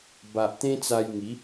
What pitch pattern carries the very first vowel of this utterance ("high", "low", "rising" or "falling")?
low